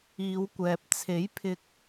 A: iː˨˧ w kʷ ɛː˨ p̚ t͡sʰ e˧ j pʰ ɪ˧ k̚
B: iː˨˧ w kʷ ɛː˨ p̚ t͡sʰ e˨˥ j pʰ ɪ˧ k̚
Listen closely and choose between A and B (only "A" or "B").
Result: B